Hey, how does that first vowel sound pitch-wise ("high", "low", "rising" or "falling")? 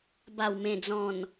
low